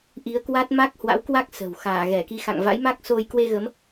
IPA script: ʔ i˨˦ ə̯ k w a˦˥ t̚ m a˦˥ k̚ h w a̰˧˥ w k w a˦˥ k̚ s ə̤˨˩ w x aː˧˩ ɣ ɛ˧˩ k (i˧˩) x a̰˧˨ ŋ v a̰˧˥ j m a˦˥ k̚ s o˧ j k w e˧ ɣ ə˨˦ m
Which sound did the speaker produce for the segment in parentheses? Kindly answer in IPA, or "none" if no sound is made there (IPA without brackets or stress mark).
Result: i˨˦